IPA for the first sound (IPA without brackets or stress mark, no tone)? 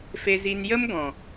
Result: f